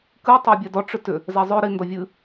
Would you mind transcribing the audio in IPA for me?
kɨtˤo bʲɛdɔ ʈ͡ʂʏtʏ | zɛzˤø ɾi ndɔvʲɨ

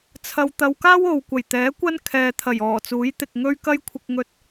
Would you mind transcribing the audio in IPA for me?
t͡sʰɐ˧wt̪ɐ˧w kaː˥wo˨w kʷɐ˨˩jt̪ɛː˨˥ kʷɐ˥nkʰɛː˨t̪ʰɐ˨˩j ɔː˨˩t͡suː˨˥jt̪ɪ˨k̚ ŋɵ˧ɥkɐ˧jkʷʰɪ˨k̚ŋɵ˨t̚

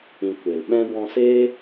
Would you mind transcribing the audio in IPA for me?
ĩ˨ kʷe˨lɓɛ̃˦ bɔ̃˧seː˦

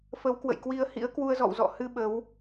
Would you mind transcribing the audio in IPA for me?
fə˨˦wkwə̰˧˨jkwi˧ə̯hḭ˧˥ə̯ kwu˧ə̯zɔ̰˧˨w zɔ̰˧˨hɨ˧ ɓə˨˦w

